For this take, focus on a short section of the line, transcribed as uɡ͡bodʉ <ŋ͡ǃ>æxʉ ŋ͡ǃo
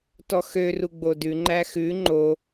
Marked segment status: correct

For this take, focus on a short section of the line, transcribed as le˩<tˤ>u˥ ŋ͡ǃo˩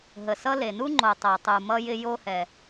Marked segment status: incorrect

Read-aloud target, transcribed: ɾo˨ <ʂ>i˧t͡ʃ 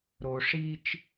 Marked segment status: correct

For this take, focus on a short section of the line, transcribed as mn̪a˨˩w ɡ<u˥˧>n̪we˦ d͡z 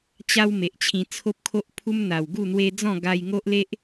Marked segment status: correct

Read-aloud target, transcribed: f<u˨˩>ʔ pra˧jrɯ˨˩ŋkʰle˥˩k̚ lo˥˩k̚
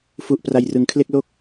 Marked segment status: correct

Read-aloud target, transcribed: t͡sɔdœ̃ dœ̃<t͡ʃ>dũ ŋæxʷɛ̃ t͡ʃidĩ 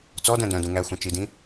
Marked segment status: incorrect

